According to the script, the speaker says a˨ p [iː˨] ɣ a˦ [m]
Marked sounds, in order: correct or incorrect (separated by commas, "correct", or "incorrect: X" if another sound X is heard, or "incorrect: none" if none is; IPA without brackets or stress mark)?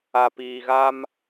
correct, correct